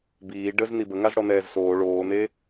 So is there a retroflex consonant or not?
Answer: yes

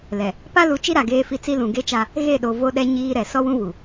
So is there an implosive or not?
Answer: yes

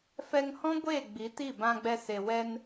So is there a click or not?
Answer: no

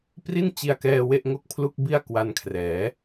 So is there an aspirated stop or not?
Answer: yes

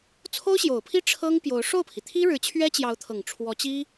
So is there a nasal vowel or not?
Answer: no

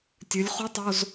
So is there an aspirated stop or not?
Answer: no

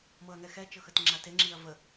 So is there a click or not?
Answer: yes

